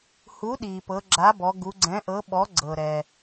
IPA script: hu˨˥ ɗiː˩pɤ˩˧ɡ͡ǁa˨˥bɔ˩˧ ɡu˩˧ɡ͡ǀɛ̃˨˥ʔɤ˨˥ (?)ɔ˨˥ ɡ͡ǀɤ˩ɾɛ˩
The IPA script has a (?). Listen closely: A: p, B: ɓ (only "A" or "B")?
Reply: B